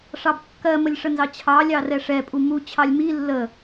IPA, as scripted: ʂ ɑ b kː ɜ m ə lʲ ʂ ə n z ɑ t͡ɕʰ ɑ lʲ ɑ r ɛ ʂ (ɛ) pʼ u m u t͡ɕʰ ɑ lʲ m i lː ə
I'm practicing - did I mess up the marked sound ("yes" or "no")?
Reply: no